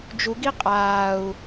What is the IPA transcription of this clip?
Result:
d͡ʒ u ɡ i qʼ aː u̯

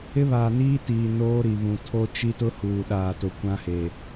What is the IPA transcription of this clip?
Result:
ɪ˦ β aː˨ n iː˦ t iː˨ n oː˦ ɾ i˨ β ũ˨ tʰ o˦ t͡ʃ i˦ t ʊ˦ h uː˨ ɗ aː˨ t ʊ˨ kʷ ã˦ h e˨

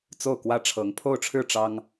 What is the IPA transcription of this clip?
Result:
t͡s o˥˩ ʊ̯ k w ä˥ ʈ͡ʂʰ ɤ˧˥ ŋ pʰ o˥˧ ʊ̯ ʈ͡ʂʰ ɻ̩˥˩ ʈ͡ʂ ɑ˥ ŋ

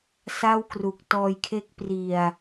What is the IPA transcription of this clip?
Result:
s a˥˩ w k r u˨˩ k̚ t ɔː˧ j kʰ e˦˥ k̚ p r i˨˩ a̯

